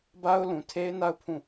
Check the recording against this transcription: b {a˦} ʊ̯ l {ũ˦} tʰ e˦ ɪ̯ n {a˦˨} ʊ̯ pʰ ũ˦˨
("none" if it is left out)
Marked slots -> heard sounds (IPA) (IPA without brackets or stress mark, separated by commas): a˦, ũ˨, a˦˨